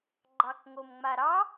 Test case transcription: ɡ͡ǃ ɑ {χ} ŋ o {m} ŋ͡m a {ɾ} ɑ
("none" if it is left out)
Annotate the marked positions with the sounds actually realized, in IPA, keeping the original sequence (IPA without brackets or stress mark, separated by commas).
k, m, ɾ